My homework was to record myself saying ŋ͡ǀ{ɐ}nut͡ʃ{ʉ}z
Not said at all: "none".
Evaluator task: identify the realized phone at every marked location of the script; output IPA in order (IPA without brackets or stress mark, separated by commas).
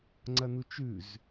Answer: ɐ, ʉ